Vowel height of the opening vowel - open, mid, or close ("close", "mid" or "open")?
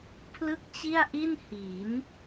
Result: close